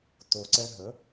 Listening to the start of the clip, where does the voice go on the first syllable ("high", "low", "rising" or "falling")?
low